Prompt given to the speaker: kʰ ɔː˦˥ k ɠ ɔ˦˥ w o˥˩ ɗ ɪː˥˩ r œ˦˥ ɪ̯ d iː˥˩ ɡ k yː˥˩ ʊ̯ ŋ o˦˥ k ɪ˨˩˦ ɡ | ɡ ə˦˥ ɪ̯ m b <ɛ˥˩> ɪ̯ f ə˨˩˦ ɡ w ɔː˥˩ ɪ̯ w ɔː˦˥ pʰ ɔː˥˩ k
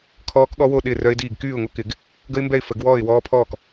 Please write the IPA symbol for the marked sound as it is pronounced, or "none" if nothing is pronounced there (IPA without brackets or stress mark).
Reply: ɛ˥˩